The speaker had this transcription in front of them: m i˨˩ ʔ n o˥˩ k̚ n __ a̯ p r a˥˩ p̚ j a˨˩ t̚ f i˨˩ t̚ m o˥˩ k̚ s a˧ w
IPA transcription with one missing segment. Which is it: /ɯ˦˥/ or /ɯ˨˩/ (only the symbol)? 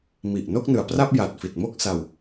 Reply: ɯ˨˩